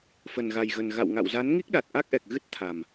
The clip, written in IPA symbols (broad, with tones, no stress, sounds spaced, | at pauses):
f ə˨˩ n ɣ a˨˩ j ɣ ə˨˩ n ɣ a̰˧˨ w ŋ a̰˧˨ w z a˨˦ n ŋ i˦˥ k̚ ɗ a˨˩ t̚ ʔ a˦˥ k̚ ʔ ɛ˨˩ k̚ ɣ ɨ˦˥ t̚ t̪ʰ a˨˩ m